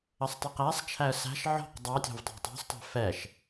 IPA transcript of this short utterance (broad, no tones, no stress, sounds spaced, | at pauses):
ə sˤ tˤ i q æ sˤ t͡ʃʰ æ ə̯ s æ̤ ʃ ʕ ɔ̤ q dˤ ɑ tʲ ɔ̤ v tˤ ɑ̤ tˤ ɑ̤ s tˤ æ̤ f ɛ ʃ